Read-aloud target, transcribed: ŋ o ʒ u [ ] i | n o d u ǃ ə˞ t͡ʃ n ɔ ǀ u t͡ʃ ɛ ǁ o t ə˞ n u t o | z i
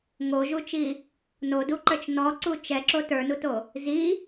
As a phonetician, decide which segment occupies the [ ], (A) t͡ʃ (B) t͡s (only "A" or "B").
A